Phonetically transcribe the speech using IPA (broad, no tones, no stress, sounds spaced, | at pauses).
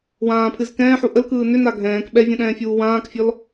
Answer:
w ãː pʰ ɨ z k ɛ̃ː ħ u ʔ ə l k ɯː n ʏ n a ɡʱ ɛ̃ː k ɓ ɛ vʲ ɛ̃ ɗ ɛ̃ː fʲ uː w ãː k fʲ ɔ l